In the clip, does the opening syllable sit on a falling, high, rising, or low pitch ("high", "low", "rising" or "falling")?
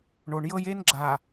low